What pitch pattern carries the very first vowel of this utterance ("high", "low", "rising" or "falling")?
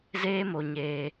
high